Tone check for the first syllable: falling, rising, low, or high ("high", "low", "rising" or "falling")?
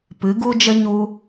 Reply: rising